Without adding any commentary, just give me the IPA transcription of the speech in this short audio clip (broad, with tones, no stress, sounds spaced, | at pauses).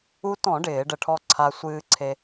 u˧ t ɔ̃˧˩˧ ɖ ɪː˧˩˧ ɖ ə˧˩˧ ʈʰ ɔ˧ ǀʰ a˧ sʷ ɨː˧ ǀʰ e˧